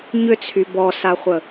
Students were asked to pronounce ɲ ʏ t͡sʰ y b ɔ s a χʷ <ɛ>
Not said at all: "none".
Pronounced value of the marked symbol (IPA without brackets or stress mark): ə